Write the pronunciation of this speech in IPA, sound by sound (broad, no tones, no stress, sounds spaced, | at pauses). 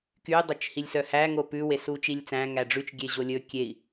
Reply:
k y dˤ ɵ t͡ʃ h i lʲ s œ h æ ŋ o p ʉ w e s u t͡ʃ i lʲ t͡s æ̃ ŋ æ ɖ͡ʐ ʉ t͡ʃ ɡʲ e ʑ o lʲ ɵ kʲ e i̯